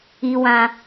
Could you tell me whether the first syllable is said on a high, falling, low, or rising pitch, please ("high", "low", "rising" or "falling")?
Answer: high